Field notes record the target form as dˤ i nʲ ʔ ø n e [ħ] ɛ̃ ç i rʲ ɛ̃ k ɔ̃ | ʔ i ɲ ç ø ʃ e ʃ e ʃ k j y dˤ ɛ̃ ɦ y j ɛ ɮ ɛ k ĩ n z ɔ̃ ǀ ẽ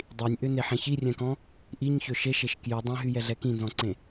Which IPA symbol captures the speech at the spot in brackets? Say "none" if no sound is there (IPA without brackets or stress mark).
ħ